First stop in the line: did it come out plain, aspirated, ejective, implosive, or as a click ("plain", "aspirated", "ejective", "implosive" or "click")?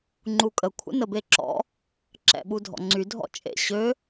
click